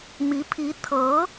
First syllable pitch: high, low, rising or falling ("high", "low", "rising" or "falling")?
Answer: rising